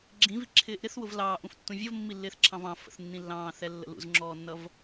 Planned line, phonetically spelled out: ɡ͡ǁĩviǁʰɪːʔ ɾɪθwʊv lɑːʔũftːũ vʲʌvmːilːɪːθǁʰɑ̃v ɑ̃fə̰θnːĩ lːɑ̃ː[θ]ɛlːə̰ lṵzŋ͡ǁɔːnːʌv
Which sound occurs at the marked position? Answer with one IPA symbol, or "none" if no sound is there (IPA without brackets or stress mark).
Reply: θ